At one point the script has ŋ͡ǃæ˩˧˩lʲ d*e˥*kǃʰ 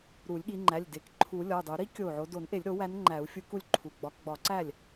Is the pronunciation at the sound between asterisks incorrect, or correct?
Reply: incorrect: e˨˩˦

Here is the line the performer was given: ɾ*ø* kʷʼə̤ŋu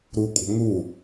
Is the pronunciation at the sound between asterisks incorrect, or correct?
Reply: incorrect: u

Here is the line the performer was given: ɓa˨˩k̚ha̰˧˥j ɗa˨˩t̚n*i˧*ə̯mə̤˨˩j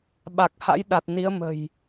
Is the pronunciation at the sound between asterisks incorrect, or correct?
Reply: incorrect: i˨˦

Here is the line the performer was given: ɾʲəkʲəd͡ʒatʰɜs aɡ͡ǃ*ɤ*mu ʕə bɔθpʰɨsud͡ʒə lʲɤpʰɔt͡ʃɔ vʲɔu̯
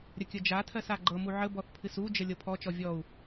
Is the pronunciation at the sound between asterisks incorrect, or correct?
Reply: correct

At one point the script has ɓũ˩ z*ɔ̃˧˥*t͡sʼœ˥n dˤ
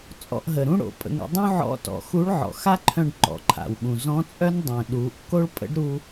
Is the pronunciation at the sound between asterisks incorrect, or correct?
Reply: correct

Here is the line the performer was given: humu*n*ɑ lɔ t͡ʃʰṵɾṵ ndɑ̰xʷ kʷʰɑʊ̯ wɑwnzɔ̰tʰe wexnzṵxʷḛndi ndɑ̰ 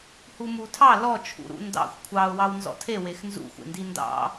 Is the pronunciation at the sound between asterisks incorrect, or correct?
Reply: incorrect: tʰ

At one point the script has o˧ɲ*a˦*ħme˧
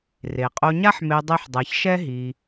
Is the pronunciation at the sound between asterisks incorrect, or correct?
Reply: correct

